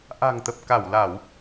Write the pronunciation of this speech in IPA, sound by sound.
ʔ a̤˨˩ ŋ t̪ ə˨˩ p̚ k a˧˩ w l a˧˩˨ w

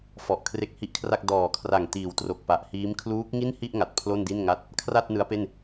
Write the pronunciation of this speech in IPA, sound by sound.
f ɔ˨˩ ʔ kʰ r e˦˥ k̚ h i˦˥ ʔ kʰ r a˥˩ k̚ d ɔː˨˩ kʰ r a˨˩ ŋ t iː˩˦ w t r o˨˩ k̚ p a˨˩ ʔ h iː˦˥ m kʰ l uː˦˥ k̚ ŋ i˥˩ n h i˥˩ ʔ ŋ a˨˩ t̚ pʰ l o˥˩ n d i˥˩ n ŋ a˥˩ t̚ | kʰ r a˥˩ t̚ n ɯ˦˥ a̯ p e˥˩ n

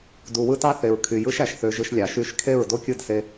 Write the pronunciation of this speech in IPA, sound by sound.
d u˨ w ɯ˦ t ɑ˦ θ e˨ ɹ kʰ y˨ j ɯ˦ ʃ æ˨ ʃ θ ø˧ ʒ ɯ˧ ʃ lʲ ɑ˨ ʃ y˦˨ ʃ kʰ e˦˨ ɹ d o˦ kʲ ɯ˦˨ d s e˧

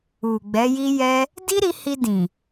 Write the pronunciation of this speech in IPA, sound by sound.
u˨ ɡ͡b ɛ˨˦ j i˦ j ɛ˦ | d i˦ ɾ i˧ h i˧ d ĩ˨

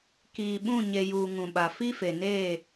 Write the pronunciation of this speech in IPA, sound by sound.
k iː˨ ɓ ũ˦˨ ɲ e˨ j uː˨ ŋ ũ˨ ɓ a˨ f i˦ f e˨ n eː˦˨

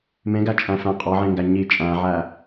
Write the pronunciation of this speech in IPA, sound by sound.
m ẽ ɡ æ t͡ʃʼ æ̃ f æ̃ qʼ ɒ ʕ ẽ ŋ ɡ æ ɲ i t͡ʃʼ æ̃ ʕ æ

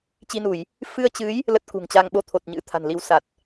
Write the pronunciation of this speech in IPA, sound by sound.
t͡ɕ i˧ n u˧˩˨ j | f ɨ˧ ə̯ t͡ɕ ɨ˨˦ j | l ə˦˥ t̚ k ṳ˨˩ ŋ t͡ɕ a˧ ŋ ɓ o˧ t̪ʰ o˨˩ t̚ ɲ ɨ̰˧˥ t̪ʰ a̤˨˩ n l i˨˦ w s a˨˩ t̚

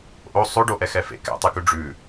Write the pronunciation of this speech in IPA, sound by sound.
ʔ o sˤ o ɖ o ʔ ɛ x ɛ f ḛ k ɛ̰ tˤ ɨ k ʉ ɖ͡ʐ ʉ

